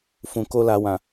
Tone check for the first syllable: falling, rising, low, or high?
low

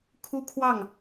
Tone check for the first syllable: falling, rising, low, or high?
high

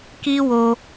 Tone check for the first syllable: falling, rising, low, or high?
high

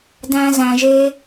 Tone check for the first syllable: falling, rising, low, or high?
high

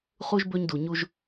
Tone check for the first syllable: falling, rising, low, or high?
high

